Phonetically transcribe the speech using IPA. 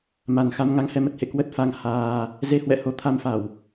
m a˨˩ n x a˧ m ŋ a˧ ŋ h ɛ˧ m ə˨˩ t̚ h ḛ˧˨ k w ə˦˥ t̚ f a˧ ŋ h aː˧ | z e˧ h w ɛ̰˧˨ h o˧ t̪ʰ a˧ m f a˧˩˨ w

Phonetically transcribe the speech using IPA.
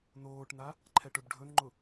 n oː ʈ n a | ǃʰ ɛ ʈ ɵ b ɖʱ ɵ n ŋ͡ǃ ʊ

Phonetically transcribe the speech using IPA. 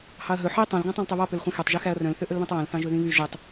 h ɑ ɐ̯ ɦ ɵ ħ i tˤ œ̃ l ɡ æ̃ tˤ œ̃ l tˤ ø β ɑ p ø l χʷ ɛ̃ x ɛ tˤ ʒ y x æ ɐ̯ r œ̃ l θ ø ʔ ɵ l β ɛ̃ tˤ w æ̃ l θ ɑ̃ ʒ ɵ ð ĩ β y ʒ i tˤ

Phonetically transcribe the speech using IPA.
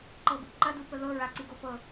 ǃ ɤ b ṵ ǃ ɐ d u p ə ð ɤ ɹ a ǀ i ɡ o p ɤ

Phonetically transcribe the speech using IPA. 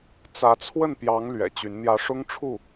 t͡s ä˧˥ t͡sʰ w ə˥˩ n p j ɑ˧˥ ŋ l ɥ ɛ̰˨˩ t͡ɕ y˧˥ n n̪ j ä˧˥ ʂ ʊ˥ ŋ ʈ͡ʂʰ u˥˩

